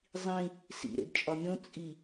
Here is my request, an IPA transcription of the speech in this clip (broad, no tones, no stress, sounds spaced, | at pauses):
zˤ ĩ | s ḭ ɾ ḛ d t͡ʃʼ ɒ mʲ õ t͡sʼ i